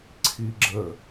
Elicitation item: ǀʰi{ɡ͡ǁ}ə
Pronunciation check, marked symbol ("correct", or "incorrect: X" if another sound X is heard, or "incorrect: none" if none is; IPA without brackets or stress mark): correct